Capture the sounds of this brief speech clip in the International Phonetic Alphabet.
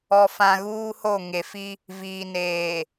ɔ˨ f ã˨ ɣ uː˦ h o˦˨ ŋ e˨ f i˦ | v iː˨ n eː˨

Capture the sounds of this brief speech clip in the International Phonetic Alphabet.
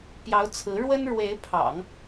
p j ɑ˧˥ ʊ̯ t͡sʰ ɹ̩˧˥ ɻ w ə˥ n ɻ w e˧˥ ɪ̯ pʰ ɑ̰˨˩˦ ŋ

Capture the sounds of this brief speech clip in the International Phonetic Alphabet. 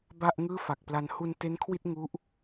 b a˥˩ ʔ ŋ ɯː˥˩ f a˨˩ k̚ p l a˧ n h u˧ n t e˦˥ n kʰ w i˥˩ t̚ ŋ u˦˥ ʔ

